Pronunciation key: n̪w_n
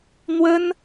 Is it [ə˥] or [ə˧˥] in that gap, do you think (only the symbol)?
ə˥